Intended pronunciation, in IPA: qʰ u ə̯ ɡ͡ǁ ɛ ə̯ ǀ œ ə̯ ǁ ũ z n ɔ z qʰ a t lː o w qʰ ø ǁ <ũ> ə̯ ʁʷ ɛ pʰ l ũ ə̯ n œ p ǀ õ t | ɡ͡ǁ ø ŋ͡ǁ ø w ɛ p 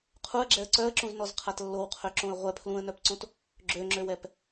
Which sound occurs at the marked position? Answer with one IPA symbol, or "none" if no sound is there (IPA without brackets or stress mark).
õ